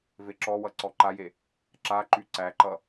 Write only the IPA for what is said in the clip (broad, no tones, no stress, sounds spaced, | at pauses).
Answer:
v e ǁ ɔ w ʌ ǀ ɔ ǃ a j e | ǁ a ǃ y ǀ æ ǃ ʌ